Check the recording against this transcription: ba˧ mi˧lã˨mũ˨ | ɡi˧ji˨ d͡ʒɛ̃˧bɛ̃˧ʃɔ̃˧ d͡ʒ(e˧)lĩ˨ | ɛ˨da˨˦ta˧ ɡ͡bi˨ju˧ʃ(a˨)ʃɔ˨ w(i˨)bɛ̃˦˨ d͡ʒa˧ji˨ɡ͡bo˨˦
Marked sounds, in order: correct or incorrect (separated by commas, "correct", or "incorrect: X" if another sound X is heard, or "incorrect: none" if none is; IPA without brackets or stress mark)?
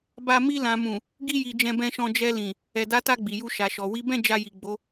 incorrect: ɛ˧, correct, incorrect: i˨˦